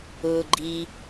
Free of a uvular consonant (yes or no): yes